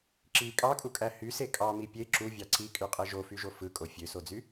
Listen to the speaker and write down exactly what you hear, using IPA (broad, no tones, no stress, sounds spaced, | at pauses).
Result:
ǁ i kʼ ɑ kʼ u kʼ æ h y s e kʼ ɑ m i pʲ e ǁ u vʲ ɑ ǀ i kʼ y qʼ e ʒ o f y ʒ o f ɯ kʼ o fʲ ø s o d͡z y